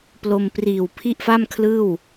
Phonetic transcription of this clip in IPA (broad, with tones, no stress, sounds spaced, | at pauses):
p l o˧ m p r iː˨˩ w pʰ i˥˩ ʔ f a˥˩ m kʰ l ɯː˥˩ w